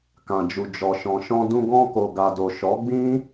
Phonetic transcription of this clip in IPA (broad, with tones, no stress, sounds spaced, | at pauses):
k ã˨ d͡ʒ u˨ d͡ʒ ɔ˨ ʃ ɔ̃˨ ʃ ɔ̃˧ d ũ˧ ɡ ɔ̃˧ k o˨ ɡ a˨ d o˨ ʃ ɔ˨˦ ɡ͡b ĩ˦